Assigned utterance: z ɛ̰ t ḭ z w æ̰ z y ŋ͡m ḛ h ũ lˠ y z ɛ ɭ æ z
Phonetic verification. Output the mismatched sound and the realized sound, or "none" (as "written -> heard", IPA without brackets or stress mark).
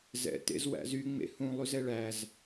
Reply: ḭ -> ḛ